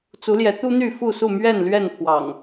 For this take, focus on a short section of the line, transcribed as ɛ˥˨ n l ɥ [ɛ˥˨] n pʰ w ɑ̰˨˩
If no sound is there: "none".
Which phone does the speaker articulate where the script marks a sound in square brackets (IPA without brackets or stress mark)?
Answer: ɛ˥˨